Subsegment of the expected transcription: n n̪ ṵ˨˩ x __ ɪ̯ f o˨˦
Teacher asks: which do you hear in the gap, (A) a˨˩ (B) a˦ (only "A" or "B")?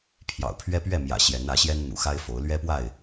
B